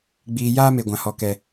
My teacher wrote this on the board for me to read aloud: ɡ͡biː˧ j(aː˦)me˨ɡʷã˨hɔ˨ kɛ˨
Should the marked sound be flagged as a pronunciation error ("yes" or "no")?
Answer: no